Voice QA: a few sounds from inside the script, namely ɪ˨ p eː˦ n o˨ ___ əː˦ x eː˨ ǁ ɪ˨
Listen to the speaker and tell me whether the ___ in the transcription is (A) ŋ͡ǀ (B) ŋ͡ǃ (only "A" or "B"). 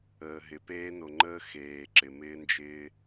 B